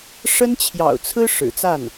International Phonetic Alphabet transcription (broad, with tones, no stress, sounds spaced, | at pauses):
ʂ ə˥ n t͡ɕʰ j ɑ̰˨˩ ʊ̯ t͡sʰ ɹ̩˥ ʂ ɻ̩˨˩ t͡s a˥˩ n